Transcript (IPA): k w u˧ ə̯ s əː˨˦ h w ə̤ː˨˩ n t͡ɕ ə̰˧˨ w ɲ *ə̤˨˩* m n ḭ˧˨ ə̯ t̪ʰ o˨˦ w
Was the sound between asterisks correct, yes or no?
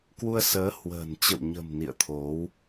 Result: yes